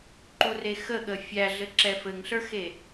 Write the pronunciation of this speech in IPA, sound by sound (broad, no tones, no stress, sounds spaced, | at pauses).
ǃ u r e x ə ɠ ə fʲ æ ɮ ɘ ǁ ɛ f ɘ ŋ ɬ ə˞ x e